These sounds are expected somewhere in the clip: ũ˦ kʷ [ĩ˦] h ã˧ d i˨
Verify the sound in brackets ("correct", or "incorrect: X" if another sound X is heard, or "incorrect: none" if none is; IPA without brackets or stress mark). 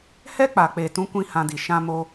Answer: correct